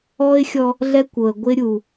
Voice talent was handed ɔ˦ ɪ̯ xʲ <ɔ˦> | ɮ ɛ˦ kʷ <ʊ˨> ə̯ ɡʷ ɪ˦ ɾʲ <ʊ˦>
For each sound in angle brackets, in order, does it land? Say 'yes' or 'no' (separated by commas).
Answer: yes, yes, no